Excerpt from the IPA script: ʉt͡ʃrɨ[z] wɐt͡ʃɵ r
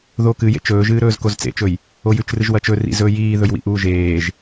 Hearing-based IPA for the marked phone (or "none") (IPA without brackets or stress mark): ʒ